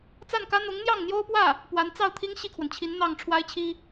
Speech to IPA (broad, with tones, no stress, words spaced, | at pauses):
t͡sa˥˩nkä˥ n̪ʊ˧˥ŋn̪jɑ˥˩ŋn̪jo˥ʊ̯pwä˥˩ | pwa˧˥nt͡sɑ˥˩ʊ̯t̪ʰi˥ŋ ɕi˥˩kʰwə˩nt͡ɕʰi˧˥n n̪ɑ˥˩ŋ ʈ͡ʂʰwa˥ɪ̯t͡ɕʰi˥